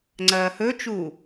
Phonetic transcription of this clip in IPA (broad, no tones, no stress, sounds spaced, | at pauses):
ŋ͡ǀ ɐː h ɵ t͡ʃ uː